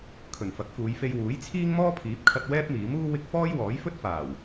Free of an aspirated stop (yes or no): no